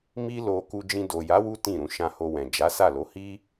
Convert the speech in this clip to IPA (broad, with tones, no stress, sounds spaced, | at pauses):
m i˦ l o˧ k u˧ d͡ʒ ĩ˧ d o˨ j a˨˦ w u˦ t ĩ˦˨ ɾ ũ˨˦ ʃ ã˧ h o˧ w ɛ̃˨ d͡ʒ a˨˦ s a˦˨ l o˨˦ h i˦